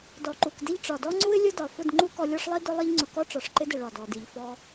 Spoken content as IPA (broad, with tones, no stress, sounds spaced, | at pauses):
d ɔ˨ ǃ u˨ k d ɪ˦ ʎ ʈ͡ʂ ɒ˨ d ɔ˦ ŋ͡ǀ u˦ ɪ̯ lʲ ʊ˦ d ɒ˨ f ʊ˦˨ d ŋ͡ǃ u˦ k ɔ˧ lʲ ɒ˦ ʂ lˠ i˦ d ʊ˦ lˠ i˧ ʎ ŋ͡ǀ ʊ˨ k ɔ˦ ʈ͡ʂ ɒ˨ ʂ ǃ ɪ˦ d ɪ˨ ɭ ɒ˨ d ɔ˨ d i˨ ʎ f ɔ˧